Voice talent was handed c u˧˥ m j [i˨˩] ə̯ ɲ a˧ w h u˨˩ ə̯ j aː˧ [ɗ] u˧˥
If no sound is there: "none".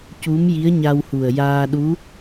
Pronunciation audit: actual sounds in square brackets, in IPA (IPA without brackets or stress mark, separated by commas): i˧˥, ɗ